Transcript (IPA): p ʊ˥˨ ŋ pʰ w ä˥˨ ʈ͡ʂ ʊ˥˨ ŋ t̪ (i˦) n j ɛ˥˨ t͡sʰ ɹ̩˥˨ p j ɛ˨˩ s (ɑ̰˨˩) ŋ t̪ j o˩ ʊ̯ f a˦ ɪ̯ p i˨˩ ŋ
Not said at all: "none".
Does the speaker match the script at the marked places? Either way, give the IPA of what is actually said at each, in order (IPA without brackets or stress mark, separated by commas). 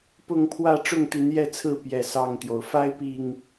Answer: i˨˦, ɑ˥˨